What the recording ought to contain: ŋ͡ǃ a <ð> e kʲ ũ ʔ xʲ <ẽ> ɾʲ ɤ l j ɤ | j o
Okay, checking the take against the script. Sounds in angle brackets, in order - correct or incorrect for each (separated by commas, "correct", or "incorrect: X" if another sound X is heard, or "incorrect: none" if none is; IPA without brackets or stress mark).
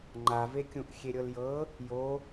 incorrect: v, incorrect: e